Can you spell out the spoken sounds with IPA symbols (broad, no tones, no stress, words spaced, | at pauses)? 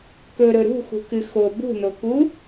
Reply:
kɵɾɵ ɾṳxṳkɨ xo bṳnoku